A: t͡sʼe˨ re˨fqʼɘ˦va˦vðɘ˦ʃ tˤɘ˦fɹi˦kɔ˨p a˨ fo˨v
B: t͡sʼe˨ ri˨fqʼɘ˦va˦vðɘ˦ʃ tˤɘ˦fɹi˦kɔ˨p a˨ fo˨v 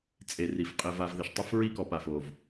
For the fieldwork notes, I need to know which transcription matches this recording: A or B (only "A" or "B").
B